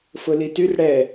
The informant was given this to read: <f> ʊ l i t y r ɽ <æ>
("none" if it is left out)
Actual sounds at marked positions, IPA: f, ɛ

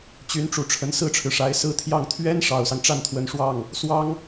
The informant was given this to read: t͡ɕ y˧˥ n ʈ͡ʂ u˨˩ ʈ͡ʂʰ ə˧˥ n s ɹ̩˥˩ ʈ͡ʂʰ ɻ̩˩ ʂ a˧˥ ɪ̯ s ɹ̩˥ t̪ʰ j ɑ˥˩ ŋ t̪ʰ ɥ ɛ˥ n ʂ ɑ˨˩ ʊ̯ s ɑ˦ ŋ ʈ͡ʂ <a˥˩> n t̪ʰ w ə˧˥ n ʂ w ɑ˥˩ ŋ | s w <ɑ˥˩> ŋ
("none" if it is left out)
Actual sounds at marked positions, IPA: a˥˩, ɑ˥

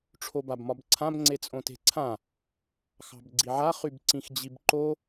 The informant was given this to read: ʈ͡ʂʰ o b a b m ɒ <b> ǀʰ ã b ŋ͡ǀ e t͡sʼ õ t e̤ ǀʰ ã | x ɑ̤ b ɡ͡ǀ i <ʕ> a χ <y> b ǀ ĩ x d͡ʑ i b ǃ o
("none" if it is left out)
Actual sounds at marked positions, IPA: b, ʕ, y

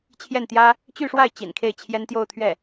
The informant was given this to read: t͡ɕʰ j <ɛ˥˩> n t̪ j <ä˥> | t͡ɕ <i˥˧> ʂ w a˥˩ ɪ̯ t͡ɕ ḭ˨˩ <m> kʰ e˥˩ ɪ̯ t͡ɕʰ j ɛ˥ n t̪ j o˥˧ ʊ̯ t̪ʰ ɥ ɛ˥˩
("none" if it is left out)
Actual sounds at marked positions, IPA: ɛ˥˩, ä˥, y˥˧, n

